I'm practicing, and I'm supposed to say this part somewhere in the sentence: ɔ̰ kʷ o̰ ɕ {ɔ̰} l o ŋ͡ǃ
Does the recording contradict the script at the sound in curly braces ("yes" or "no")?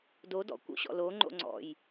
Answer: no